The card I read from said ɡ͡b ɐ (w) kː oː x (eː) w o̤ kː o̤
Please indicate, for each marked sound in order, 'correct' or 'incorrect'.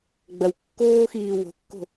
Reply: correct, incorrect: iː

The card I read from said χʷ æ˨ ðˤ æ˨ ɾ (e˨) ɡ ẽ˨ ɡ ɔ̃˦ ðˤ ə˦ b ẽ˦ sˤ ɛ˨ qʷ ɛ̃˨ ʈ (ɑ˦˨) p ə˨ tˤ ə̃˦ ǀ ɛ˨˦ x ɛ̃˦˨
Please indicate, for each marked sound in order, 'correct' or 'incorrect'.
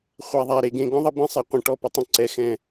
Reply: correct, incorrect: ɔ˦˨

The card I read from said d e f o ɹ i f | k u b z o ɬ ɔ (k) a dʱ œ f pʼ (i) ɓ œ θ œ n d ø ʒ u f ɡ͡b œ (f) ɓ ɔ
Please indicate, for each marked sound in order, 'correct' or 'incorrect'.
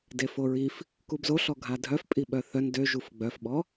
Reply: incorrect: ɡʱ, correct, correct

